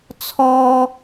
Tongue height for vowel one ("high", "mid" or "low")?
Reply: mid